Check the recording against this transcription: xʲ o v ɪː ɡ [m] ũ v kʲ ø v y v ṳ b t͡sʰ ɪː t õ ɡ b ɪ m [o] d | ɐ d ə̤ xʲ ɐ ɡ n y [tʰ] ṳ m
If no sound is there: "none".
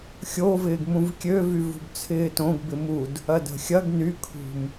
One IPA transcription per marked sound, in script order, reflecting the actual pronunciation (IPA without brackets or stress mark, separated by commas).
m, u, kʰ